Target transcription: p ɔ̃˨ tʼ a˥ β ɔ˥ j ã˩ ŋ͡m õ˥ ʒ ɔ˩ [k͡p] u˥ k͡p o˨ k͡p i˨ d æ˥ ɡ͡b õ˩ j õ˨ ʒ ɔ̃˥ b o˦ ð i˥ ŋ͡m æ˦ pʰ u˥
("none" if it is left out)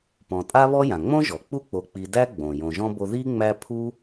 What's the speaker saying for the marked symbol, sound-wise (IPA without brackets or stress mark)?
k͡p